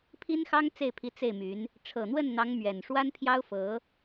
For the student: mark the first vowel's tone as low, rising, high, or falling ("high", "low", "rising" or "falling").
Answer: high